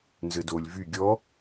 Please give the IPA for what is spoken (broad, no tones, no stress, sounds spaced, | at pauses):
n z ɘ d o lʲ v y ɡʲ ɔ